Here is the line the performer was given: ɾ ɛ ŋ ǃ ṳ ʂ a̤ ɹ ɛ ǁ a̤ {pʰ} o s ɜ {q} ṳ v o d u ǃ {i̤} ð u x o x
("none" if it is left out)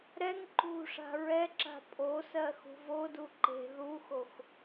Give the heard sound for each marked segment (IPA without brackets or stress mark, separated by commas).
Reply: pʼ, x, e̤